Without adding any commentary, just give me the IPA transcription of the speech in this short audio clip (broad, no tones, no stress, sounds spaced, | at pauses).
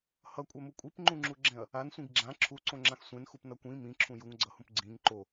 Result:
h ʌ kʷʼ ɛ m u kʷʼ i p ŋ͡ǃ ũ ŋ͡ǁ u ɡ͡ǁ ɛ̃ ɐ̯ | a n sʷ ĩ ɡ ɡ͡ǁ ã ǁʰ u ǀ õ ŋ͡ǁ ã x sʷ ẽ n x u p n ʌ kʷ ĩ m ĩ ǁʰ ũ j u ŋ ɡ͡ǀ ʌ h ũ p ɡ͡ǀ ĩ ŋ ǃ o